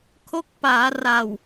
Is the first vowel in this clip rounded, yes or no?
yes